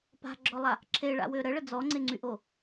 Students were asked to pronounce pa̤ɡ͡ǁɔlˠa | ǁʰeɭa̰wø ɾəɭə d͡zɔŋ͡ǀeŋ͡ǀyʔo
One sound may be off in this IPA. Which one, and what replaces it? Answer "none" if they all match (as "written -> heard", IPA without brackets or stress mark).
none